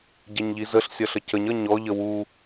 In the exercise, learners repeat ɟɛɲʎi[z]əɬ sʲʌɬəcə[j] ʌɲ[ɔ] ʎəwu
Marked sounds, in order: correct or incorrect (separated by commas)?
correct, incorrect, correct